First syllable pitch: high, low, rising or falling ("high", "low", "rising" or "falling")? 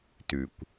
low